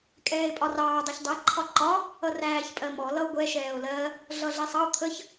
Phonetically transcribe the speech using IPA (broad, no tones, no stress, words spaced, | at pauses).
kʼɛːe̯pʼɒrɑː dˤʌçdˤæ ǃʰɒǃɒ | ʌræːçpʼɜmɔ lʌo̯ɡʷɛ ʃɛːo̯lɜ | ɮʌɮɛsˤɑo̯ t̪ʰəç